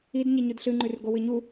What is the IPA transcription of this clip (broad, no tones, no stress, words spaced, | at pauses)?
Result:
id ɲiɲudɬɨ ŋ͡ǃʉrɡowɨɲu